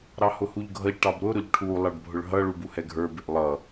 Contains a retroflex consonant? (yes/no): yes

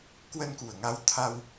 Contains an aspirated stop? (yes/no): yes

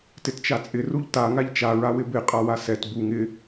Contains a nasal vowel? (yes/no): no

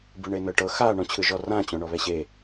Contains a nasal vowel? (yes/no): yes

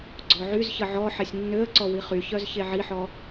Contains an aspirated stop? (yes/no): no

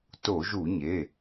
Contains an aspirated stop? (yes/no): no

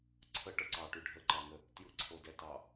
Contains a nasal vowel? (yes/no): no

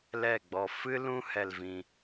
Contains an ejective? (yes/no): no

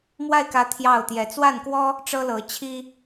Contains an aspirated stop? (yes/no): yes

